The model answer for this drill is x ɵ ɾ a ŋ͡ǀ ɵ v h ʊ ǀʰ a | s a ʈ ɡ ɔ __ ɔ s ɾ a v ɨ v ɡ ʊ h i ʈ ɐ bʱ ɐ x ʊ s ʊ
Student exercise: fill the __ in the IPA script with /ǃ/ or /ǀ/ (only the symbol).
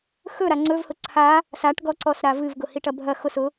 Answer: ǀ